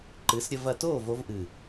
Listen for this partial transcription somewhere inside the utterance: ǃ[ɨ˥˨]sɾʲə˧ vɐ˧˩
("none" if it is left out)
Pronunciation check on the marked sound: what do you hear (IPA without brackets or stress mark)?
ɨ˩˧